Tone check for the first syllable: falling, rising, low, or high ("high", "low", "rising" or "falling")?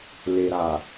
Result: low